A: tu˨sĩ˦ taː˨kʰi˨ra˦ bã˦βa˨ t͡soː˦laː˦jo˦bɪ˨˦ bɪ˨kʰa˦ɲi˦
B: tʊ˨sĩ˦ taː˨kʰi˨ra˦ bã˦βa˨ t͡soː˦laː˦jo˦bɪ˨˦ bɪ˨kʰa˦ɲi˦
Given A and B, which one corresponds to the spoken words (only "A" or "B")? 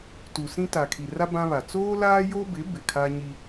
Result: A